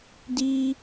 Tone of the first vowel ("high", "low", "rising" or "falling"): high